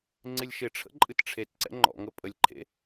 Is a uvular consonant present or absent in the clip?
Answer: absent